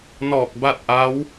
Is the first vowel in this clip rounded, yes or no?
yes